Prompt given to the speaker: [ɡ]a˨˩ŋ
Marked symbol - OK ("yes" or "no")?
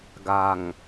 yes